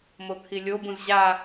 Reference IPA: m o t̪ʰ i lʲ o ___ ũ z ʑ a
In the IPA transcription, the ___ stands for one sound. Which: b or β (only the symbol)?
b